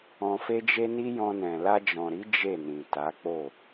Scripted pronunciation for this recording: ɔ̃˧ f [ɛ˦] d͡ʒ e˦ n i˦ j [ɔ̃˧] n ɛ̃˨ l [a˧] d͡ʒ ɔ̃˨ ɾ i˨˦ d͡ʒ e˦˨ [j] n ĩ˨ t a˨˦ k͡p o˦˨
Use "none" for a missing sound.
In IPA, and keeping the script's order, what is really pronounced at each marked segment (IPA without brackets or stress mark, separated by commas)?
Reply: e˦, ɔ̃˧, a˧, none